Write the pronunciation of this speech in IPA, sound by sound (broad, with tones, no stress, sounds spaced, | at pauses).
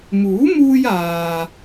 m uː˨˥ m uː˧ j aː˨